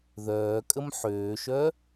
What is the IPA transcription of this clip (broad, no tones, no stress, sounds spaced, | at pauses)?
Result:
ð œː kʼ ə m ħ øː ʃ œ